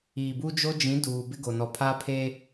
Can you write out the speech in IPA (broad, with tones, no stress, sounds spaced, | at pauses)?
iː˨ b u˦ d͡ʒ o˦ d͡ʒ ĩ˨˦ d uː˨ b ɪ˦ ɡ o˨ n ɔ˨ pʰ a˦ pʰ e˦